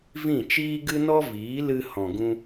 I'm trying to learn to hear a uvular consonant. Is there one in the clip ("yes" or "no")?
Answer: no